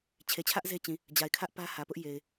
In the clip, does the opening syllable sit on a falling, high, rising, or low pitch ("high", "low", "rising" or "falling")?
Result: low